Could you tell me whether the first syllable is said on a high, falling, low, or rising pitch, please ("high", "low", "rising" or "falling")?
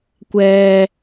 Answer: high